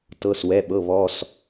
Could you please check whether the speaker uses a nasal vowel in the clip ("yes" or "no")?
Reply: no